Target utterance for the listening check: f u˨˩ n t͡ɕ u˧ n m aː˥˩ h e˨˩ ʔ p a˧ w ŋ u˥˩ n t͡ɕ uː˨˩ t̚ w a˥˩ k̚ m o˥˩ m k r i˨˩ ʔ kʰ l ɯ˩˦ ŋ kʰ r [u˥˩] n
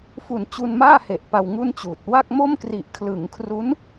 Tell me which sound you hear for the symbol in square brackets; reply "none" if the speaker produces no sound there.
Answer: u˦˥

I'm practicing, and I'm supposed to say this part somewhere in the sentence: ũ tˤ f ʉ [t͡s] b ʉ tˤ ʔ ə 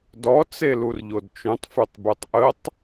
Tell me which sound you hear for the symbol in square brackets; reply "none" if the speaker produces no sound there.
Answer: tˤ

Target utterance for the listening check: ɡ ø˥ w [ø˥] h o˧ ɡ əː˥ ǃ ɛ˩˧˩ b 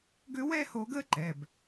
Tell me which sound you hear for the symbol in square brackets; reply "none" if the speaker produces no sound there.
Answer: ɛ˥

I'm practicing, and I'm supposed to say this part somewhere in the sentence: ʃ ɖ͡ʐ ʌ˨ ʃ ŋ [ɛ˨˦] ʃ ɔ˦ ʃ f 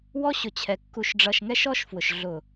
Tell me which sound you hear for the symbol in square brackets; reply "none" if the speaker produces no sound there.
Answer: ɛ˦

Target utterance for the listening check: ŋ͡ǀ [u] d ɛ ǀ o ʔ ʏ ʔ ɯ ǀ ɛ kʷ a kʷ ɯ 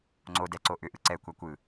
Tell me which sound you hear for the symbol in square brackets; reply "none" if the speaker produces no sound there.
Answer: o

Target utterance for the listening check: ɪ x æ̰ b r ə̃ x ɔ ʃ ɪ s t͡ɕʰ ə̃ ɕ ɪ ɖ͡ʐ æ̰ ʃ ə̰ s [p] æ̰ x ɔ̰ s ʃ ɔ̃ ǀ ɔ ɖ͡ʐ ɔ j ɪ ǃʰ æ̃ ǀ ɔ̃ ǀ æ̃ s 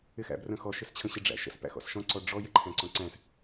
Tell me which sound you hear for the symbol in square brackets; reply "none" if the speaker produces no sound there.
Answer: p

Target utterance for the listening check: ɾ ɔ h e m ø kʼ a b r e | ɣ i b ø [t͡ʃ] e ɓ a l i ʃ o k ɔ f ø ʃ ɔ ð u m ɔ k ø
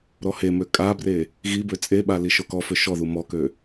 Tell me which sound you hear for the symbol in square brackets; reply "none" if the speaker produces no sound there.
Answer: t͡sʼ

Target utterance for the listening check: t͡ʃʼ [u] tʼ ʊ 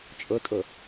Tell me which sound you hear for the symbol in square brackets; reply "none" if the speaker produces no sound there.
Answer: ʊ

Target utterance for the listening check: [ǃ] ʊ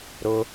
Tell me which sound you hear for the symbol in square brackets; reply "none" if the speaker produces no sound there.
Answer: ɾ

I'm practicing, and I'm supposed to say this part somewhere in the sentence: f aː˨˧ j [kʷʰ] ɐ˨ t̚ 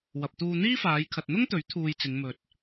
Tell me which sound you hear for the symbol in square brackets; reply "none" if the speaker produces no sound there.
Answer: kʰ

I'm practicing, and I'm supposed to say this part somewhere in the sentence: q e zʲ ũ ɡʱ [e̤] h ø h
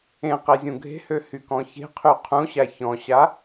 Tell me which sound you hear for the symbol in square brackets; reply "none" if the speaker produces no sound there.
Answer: e̤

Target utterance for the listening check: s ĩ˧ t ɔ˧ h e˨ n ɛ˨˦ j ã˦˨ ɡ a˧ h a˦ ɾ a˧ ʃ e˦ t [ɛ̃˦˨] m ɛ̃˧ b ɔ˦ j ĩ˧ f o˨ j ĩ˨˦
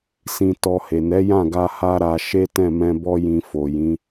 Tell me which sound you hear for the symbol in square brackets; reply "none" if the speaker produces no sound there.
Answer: ɛ̃˦˨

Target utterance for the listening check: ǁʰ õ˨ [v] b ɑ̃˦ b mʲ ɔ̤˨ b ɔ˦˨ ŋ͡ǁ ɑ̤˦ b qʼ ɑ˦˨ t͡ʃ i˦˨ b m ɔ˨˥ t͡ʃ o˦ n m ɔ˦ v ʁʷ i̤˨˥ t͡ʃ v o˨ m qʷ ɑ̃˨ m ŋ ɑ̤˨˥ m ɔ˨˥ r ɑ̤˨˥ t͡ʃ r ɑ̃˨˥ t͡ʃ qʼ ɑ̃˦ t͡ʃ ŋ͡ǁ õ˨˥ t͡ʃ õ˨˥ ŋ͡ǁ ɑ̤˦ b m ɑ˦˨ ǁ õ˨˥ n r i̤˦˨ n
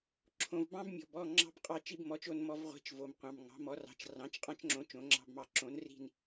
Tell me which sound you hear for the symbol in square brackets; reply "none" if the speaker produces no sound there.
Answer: v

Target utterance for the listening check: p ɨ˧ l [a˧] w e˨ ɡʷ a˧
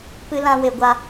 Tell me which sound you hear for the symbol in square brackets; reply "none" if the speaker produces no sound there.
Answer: ã˧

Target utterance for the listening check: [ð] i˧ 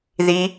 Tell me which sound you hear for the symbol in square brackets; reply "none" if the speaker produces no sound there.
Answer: ð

